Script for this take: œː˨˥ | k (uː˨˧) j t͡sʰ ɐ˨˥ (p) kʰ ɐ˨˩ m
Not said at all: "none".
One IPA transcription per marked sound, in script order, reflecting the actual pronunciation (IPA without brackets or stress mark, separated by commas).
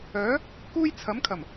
uː˥, m